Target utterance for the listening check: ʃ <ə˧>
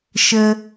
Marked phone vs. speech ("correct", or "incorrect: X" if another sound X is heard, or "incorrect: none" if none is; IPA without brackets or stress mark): correct